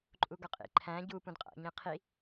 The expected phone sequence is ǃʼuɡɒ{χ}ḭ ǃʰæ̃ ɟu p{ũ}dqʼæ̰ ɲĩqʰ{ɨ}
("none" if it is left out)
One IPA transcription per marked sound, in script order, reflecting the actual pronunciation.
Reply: qʼ, ũ, i

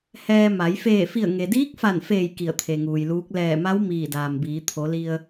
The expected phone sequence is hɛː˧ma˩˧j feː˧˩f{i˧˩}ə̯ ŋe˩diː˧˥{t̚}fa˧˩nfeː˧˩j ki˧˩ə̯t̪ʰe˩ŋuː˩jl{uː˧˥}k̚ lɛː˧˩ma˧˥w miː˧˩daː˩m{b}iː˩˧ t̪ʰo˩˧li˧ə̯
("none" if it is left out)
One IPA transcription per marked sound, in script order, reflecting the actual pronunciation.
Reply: i˧˩, k̚, uː˧˥, b

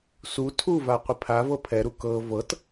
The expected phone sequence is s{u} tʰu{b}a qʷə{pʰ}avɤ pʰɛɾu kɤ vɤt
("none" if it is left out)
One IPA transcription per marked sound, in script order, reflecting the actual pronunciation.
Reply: u, v, pʰ

